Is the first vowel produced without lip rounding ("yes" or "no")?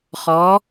no